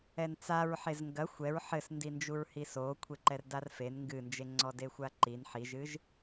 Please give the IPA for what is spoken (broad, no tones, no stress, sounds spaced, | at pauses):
ɛ n t͡s a ɹ ħ e z ŋ ɡ ɐ xʷ ɛ ɹ ħ ɘ s n d i n d͡ʒ u ɹ h i s o kʷʰ e ǃ ɛ r d a r f e n ŋ ɡ ɨ n d͡ʒ e ŋ͡ǀ ɔ d e xʷ a ǃ i n ħ i ʒ ɨ ʒ